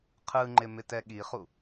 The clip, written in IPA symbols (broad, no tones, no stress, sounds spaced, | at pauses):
qʰ ɯ ŋ͡ǃ ɪ m ɪ t ɛ ɠ i χ u